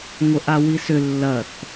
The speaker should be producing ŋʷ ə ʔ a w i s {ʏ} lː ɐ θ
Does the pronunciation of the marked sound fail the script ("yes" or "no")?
no